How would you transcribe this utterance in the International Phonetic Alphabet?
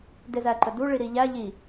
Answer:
d e z æ ǃ ə d u ɭ i ɾ i ʎ æ ʎ i

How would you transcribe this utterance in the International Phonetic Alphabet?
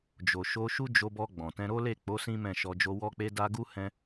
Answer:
d͡ʒ o˨ ʃ o˧ ʃ u˦ d͡ʒ o˧ b ɔ˧ ɡ͡b ɔ̃˨ t ɛ̃˧ ɾ o˦ l e˦˨ k͡p o˨˦ s ĩ˦ m ɛ̃˦˨ ʃ ɔ˧ d͡ʒ o˦ w ɔ˦ k͡p e˦ d a˦ ɡ u˦ h ɛ̃˦

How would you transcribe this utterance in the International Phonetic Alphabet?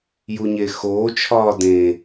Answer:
j u ɲ e x oː t͡ʃʰ ɒː d ẽ

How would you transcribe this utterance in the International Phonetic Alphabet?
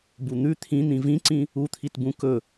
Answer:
b u n̪ ʉ t̪ʰ ĩ n̪ ĩ v ĩ ǀ ĩ | u t̪ʰ i t b ũ k ɵ

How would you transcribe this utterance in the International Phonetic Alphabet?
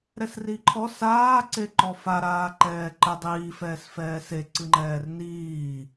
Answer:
ɾ ɛ s r i ǃʰ ɔ s aː ǀ e ǃ ɔ f a ɾ aː ǃ ɛː ǃ ɘ dˤ iː f ɛː s f ɛː s e ǀ ɨ ŋ͡ǃ ɛː r n iː

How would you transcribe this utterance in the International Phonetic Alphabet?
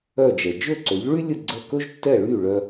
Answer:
œ˥˩ d͡ʒ ɛ˩ d͡ʒ ɵ˥˩ ǀ ɵ˩˥ ʎ ɭ y˥ lʲ ə˥˩ ɡ͡ǀ ə˥˩ k ɵ˥ ʒ tː ɛ˥˩ ɭ y˥˩ ɭ œ˧

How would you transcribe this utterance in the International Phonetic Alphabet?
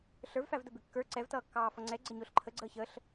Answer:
ɬ ə˞ v f æ v d ə b ɪ kː ə˞ ǀ ɛ v t ʌː kː ɑː f ʌ ŋ͡ǀ ɛ ɡ͡ǀ ə ɲ ʊː ɬ ǃʰ ə ɡ͡ǀ əː ç əː ɬ

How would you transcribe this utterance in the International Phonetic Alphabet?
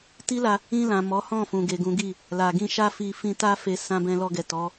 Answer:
t i˦ l a˧ | ĩ˧ l ã˨ m ɔ˨˦ h ɔ̃˦˨ f ũ˨ ɡ e˨ ɡ ũ˨˦ ɡ i˦˨ | l a˨ ɡ ĩ˧ ʃ a˦ f i˧ f ĩ˧ t a˦ f e˧ s ã˧ b ɛ̃˧ l ɔ˧ ɡ ɛ˨ t ɔ˨˦

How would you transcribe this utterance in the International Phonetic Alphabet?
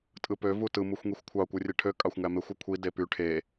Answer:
tʼ ɯ p ø v u t ɯ m u xʷ ŋ i xʷ kʷʰ ɑ kʷ ɯ rʲ e ʈʰ ø kʼ ɑ xʷ ŋ æ m e xʷ ɯ kʷʰ i d e p y ʈʰ e

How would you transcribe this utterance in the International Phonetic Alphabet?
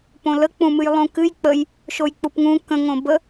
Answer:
p õ l ə k͡p ũ m ɨ j lˠ ũ k ɨ j k͡p ə j | ʃ o j k͡p u p ŋ ũ k ə̃ ŋ õ b ə

